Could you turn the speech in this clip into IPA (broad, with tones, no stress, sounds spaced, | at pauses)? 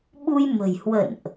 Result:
ɓ u˧ j m ə̤˨˩ j h w ə̰˧˨ n ʔ